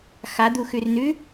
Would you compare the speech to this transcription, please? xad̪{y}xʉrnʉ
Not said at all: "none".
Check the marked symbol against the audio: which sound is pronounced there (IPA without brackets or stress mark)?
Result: u